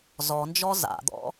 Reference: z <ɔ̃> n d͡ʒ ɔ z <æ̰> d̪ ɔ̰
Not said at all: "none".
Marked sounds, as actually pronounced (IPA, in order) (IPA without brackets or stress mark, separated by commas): ɔ, a̰